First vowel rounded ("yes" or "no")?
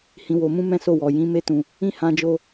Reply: no